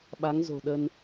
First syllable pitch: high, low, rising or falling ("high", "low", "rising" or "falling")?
rising